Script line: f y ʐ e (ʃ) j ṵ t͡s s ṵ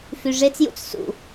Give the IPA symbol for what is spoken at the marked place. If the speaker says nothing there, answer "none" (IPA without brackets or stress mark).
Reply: t͡s